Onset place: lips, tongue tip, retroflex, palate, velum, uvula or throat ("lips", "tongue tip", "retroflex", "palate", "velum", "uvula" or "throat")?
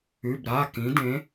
lips